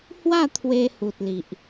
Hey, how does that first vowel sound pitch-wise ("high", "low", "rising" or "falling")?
falling